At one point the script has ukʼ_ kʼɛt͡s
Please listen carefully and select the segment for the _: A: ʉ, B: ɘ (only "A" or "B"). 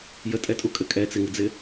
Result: B